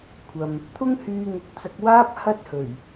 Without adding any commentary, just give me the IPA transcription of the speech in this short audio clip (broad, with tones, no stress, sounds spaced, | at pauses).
kʷʰ ɐ˨ m | t̪ʰ ʊ˥ ŋ h yː˧ ŋ ʊ˨˥ k̚ t͡s ɐ˧ k̚ w aː˥ p̚ h ɐ˥ t̚ h ɵ˨˩ ɥ